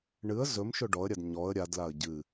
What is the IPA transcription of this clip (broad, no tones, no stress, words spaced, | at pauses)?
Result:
ɳɨə̯ zɵmʃɵ ɖɔə̯ɾʲad ɲɔə̯ ɾʲadlaə̯ ɟɨ